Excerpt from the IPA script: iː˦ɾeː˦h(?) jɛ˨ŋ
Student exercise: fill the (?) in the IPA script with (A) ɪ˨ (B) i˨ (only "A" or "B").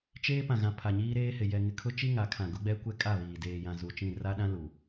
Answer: A